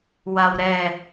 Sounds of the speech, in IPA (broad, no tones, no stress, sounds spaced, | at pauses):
w a w ɾ ɛ